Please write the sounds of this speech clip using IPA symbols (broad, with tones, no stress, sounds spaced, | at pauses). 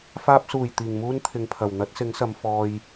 f aː˧ p̚ s uː˨˩ j t̪ iː˨˩ ŋ m uː˥ n t̪ʰ ɪ˨˧ ŋ pʰ ɐ˨˩ w n̪ ɐ˨˥ t̚ s ɪ˨˥ ŋ s ɐ˨˧ m f ɔː˧ j